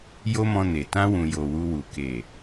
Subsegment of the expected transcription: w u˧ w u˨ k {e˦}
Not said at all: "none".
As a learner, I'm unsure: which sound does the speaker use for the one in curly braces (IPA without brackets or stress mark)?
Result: e˨